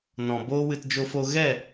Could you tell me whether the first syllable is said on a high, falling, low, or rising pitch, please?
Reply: low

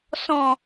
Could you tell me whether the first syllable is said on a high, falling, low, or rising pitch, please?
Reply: low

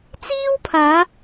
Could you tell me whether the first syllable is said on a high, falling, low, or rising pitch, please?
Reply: high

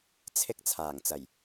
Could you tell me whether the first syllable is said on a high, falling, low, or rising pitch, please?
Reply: high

